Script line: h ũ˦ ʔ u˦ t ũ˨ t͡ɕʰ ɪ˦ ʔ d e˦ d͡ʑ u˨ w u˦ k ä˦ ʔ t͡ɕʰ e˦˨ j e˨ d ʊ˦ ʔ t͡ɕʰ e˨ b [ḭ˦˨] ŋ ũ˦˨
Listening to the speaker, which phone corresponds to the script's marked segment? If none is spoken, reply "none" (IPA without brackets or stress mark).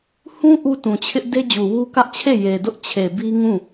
i˦